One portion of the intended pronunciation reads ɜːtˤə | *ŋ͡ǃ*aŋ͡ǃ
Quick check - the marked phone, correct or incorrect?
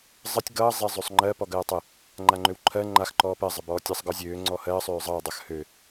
correct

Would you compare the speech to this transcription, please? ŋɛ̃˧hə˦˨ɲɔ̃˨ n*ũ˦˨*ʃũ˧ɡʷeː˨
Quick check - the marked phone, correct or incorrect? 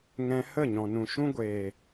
incorrect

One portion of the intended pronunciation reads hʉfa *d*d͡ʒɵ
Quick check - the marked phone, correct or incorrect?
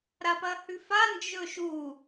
incorrect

